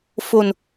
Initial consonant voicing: voiceless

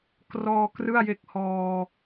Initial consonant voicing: voiceless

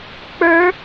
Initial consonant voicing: voiceless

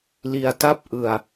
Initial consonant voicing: voiced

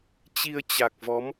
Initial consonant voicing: voiceless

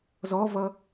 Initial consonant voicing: voiced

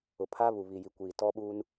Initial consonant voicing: voiceless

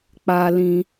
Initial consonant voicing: voiceless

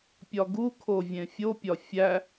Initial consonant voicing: voiceless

